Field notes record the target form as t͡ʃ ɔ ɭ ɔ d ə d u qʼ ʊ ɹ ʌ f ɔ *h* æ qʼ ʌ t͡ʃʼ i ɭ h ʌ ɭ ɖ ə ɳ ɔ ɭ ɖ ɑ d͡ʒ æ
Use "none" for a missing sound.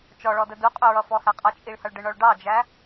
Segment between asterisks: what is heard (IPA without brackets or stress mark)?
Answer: h